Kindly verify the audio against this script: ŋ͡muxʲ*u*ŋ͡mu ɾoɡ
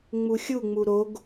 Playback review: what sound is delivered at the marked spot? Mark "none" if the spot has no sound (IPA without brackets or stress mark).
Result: u